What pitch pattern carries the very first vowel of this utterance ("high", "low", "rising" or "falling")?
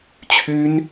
high